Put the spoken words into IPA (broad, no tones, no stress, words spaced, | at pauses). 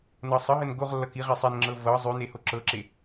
nɤsˤəɦən ɡoʁlːʌ kiʁe sˤenŋ͡ǁɤ vɤ zˤʉne hoǁɤǁe